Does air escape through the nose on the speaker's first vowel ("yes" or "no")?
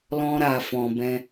yes